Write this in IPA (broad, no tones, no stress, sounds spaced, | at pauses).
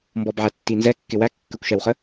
m b ɔ b ʕ æ tː i n z ɛ kː ɪ w æ kː ə kʷ ʃ ɛ w χ ə